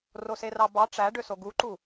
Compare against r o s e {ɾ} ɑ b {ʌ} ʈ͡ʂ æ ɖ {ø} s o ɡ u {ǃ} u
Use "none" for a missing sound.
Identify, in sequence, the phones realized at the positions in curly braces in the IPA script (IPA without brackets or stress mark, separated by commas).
r, ɑ, ø, ǃ